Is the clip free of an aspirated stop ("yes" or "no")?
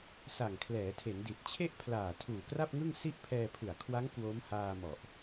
no